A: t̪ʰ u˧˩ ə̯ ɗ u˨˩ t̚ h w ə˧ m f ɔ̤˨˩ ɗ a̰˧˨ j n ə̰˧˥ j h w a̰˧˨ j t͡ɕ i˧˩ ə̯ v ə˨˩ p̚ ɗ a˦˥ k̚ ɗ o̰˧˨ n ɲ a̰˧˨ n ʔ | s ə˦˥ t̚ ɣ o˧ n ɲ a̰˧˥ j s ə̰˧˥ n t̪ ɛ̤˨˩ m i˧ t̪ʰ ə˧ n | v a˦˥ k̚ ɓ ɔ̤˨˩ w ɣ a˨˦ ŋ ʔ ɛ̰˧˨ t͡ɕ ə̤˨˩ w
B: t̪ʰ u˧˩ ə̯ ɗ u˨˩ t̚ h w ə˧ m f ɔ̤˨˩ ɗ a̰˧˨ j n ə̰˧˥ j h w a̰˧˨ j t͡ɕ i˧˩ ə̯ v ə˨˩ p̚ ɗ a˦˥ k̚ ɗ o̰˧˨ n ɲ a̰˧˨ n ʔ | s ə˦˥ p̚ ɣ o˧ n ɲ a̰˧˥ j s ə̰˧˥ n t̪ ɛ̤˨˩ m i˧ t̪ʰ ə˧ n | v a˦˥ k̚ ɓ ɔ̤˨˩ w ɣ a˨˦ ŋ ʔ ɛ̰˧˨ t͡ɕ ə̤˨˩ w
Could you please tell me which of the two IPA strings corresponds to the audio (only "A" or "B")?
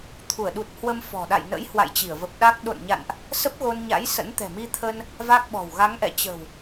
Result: B